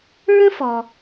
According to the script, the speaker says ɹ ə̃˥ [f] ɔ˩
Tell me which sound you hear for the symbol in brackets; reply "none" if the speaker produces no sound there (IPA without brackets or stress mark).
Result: f